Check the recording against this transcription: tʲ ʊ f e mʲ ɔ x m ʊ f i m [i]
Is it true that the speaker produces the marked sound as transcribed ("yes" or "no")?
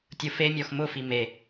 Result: no